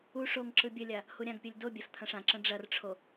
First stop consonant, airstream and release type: click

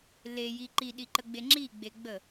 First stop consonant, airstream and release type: click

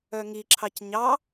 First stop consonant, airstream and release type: click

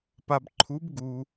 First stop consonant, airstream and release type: plain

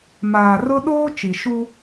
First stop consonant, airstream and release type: implosive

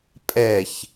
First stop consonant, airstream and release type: ejective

